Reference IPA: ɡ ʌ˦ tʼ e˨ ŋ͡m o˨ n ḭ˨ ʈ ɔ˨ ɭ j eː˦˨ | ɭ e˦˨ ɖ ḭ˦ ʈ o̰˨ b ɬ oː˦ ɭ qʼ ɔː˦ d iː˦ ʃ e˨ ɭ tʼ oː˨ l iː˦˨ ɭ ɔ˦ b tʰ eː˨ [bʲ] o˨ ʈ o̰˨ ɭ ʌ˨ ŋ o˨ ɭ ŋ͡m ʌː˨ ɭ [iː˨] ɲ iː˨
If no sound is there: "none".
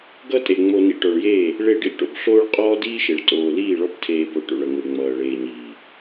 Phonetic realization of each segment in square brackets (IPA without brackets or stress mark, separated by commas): b, eː˨